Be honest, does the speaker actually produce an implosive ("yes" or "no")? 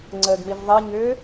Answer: no